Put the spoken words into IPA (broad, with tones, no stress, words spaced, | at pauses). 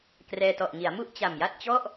krɛː˧ tɔ˨˩ʔŋi˩˦a̯mu˥˩ʔ t͡ɕa˨˩mja˥˩t̚t͡ɕɔ˥˩ʔ